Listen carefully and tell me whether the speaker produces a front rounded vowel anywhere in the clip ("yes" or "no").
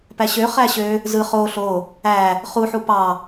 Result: yes